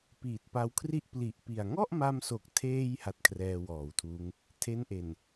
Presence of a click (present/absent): absent